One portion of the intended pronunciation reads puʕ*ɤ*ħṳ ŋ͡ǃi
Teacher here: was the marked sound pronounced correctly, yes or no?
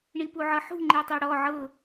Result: yes